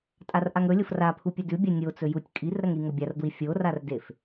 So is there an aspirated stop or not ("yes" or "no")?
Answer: yes